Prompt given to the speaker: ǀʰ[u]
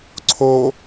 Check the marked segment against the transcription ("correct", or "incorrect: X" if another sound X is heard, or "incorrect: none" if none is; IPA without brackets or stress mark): incorrect: o